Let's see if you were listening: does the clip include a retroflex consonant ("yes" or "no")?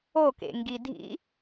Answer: no